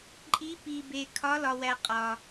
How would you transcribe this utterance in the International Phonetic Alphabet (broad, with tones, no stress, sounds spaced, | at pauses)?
ǃʼ i˧˥ p i˧ b e˧ kʰ ɒ˧˥ l ɒ˧ w æ˧ qʼ ɒ˧